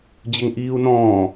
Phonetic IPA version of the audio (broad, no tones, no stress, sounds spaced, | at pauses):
d͡ʑ ɘ ŋ ʔ iː u̯ n ɔ̃ː